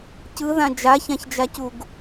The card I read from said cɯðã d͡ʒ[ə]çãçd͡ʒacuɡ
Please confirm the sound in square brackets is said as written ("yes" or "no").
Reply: no